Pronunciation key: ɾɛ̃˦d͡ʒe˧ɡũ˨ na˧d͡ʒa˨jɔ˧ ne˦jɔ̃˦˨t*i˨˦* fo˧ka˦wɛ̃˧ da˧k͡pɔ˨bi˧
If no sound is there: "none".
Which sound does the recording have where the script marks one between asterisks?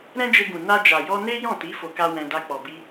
i˨˦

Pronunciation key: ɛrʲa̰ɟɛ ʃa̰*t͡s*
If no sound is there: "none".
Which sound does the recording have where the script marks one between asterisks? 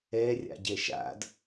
d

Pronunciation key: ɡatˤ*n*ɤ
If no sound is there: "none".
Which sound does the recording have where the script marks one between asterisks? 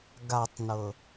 n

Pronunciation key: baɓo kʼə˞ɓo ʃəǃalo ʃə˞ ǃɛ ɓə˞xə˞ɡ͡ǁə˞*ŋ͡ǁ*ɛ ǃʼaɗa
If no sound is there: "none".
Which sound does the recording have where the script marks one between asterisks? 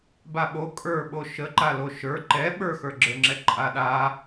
ŋ͡ǁ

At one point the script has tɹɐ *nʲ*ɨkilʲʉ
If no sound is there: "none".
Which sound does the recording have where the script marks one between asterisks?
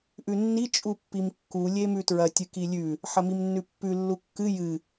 tʲ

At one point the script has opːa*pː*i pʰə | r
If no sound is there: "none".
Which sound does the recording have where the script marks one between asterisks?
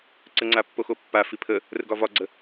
f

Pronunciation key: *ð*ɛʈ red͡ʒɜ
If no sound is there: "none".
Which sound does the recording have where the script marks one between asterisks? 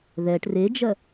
ð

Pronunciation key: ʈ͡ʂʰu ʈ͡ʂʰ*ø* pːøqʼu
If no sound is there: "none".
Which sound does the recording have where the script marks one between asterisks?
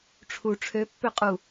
ø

